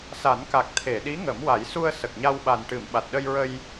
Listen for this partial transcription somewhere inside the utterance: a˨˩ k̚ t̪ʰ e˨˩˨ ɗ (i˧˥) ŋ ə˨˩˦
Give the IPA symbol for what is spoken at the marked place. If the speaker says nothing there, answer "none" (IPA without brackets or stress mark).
i˧˥